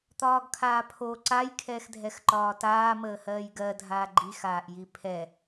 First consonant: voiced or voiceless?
voiceless